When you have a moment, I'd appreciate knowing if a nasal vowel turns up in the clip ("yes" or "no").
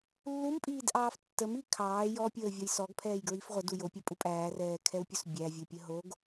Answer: no